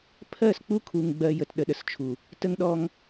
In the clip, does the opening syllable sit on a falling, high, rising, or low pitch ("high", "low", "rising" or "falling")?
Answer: falling